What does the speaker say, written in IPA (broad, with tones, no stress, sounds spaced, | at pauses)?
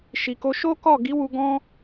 ʃ i˨ k o˧ ʃ o˦ k ɔ˦˨ ɡ i˨˦ w u˧ ɡ ɔ̃˦